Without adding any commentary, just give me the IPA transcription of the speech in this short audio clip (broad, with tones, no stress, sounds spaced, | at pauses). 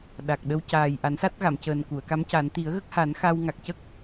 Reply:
ɗ a˨˩ k̚ ɗ ə˧˥ w c aː˨˩ j ʔ a˨˩˦ n s a˦˥ t̚ ɣ a˨˩˨ m c əː˨˩ n k u˨˩˨ ə̯ k a˧˥ m c a˨˩˦ n t̪ i˨˩˦ ə̯ ɣ ə˦˥ k̚ h a˨˩˦ n x a˧ w ŋ a˨˩ k̚ c ə˦˥ k̚